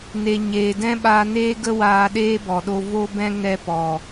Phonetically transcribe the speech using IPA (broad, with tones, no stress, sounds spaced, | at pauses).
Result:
n e˨ ɲ eː˨ d ɛ̃˦ ɓ aː˧ n eː˦ ɡ ə˦ w aː˧ ɗ eː˦ b ɔ˨ ɗ o˧ v o˧ b ɛ̃˧ ŋ ɛ˧ p ɔ˨